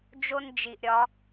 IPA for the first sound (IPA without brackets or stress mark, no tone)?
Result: d͡ʒ